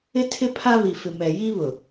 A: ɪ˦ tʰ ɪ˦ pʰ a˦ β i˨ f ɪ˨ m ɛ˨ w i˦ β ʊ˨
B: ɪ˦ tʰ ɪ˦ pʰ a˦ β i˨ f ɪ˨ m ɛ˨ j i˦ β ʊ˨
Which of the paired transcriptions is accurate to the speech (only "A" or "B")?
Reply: B